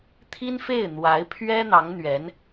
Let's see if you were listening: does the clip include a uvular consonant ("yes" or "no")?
no